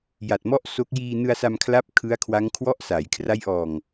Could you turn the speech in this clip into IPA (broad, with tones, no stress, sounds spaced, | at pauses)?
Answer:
j a˨˩ t̚ m ɔ˥˩ ʔ s o˦˥ k̚ j iː˧ n ɯ˧ a̯ s a˧ m kʰ l a˦˥ p̚ kʰ ɯ˦˥ a̯ kʰ w a˦˥ ŋ kʰ w ɔ˥˩ ʔ s a˩˦ j kʰ r a˦˥ j ʔ ɔː˨˩ ŋ